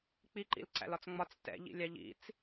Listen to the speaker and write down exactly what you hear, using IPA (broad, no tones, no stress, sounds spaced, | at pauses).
k͡p i ǃ ḭ l ǀ æ̰ l ɒ t͡s ŋ͡m ɒ t͡s t ɛ̰ ʎ ḭ lʲ ɑ ʎ ḭ t͡s